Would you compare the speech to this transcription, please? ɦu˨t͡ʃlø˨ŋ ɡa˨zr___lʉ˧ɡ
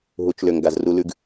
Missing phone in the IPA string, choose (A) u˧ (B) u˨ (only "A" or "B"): A